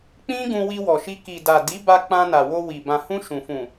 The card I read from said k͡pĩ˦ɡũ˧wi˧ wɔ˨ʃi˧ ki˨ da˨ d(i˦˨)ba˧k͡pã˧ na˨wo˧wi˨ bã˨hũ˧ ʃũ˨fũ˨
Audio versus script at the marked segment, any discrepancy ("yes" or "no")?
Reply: yes